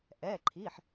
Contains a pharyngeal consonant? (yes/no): yes